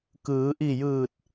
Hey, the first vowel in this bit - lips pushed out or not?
no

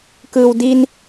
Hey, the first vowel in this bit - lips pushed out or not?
no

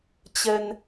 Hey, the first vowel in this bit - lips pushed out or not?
no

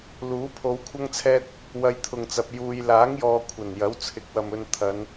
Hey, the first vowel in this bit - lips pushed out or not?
yes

